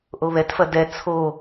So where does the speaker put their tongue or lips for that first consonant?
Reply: throat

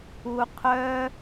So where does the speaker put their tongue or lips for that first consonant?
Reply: uvula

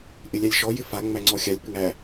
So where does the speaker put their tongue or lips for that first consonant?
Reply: throat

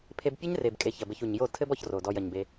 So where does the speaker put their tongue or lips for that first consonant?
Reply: lips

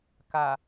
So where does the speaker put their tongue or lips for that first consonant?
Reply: velum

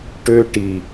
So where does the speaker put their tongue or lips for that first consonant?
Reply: retroflex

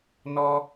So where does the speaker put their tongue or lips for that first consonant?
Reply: tongue tip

